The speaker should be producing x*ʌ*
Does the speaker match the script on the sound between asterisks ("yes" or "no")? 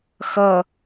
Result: yes